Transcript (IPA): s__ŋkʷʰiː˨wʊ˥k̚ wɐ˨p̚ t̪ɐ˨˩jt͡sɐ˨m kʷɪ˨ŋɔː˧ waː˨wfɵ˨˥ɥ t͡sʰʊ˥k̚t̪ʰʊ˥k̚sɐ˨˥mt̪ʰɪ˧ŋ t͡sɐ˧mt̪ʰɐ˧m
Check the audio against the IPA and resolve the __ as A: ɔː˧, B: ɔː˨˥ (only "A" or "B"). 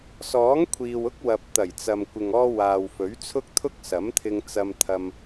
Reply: B